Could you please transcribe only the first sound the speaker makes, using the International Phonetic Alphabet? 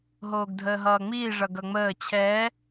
ɦ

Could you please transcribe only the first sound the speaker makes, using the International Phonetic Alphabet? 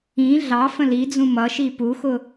ĩ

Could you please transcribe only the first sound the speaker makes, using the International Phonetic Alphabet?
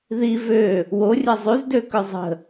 ð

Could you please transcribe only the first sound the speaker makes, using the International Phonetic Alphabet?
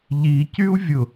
ʎ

